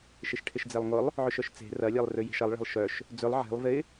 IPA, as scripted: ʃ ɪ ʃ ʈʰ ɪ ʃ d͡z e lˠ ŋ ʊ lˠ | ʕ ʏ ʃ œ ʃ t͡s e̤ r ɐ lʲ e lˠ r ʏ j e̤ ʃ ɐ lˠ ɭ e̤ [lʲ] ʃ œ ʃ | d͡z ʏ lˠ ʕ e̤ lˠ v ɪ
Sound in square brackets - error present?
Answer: yes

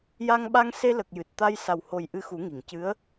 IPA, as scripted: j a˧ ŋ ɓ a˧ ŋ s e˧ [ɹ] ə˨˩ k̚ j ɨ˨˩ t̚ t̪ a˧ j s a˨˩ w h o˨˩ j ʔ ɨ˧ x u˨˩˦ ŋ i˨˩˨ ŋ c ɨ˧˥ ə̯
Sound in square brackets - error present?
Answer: yes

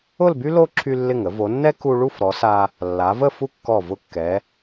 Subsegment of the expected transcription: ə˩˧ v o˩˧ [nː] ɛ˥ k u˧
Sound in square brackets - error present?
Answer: no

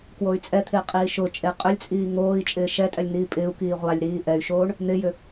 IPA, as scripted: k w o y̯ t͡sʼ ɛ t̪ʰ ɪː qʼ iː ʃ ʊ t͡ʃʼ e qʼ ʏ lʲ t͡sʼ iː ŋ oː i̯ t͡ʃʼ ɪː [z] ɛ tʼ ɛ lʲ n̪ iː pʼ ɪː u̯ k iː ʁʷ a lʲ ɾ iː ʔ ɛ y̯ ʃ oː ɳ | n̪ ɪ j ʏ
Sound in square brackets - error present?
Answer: yes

